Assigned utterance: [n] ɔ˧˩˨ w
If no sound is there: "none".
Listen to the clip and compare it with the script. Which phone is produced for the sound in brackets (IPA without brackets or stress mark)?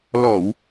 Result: l